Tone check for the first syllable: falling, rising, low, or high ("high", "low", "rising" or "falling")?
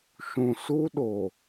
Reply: low